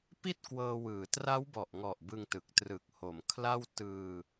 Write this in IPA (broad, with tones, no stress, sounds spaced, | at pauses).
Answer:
p i˥˩ t̚ k w ɤː˧ w ɯː˩˦ t r a˦˥ w b ɔ˨˩ ʔ ŋ ɔ˨˩ ʔ b ɯ˧ ŋ t ɯ˨˩ k̚ t r ɯ˨˩ k̚ h o˩˦ m kʰ l a˥˩ w t ɯː˧